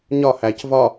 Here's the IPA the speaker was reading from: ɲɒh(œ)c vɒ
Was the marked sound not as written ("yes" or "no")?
yes